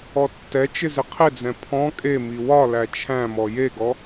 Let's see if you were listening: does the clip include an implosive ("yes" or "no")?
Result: no